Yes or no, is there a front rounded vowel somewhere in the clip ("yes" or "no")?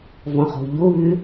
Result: yes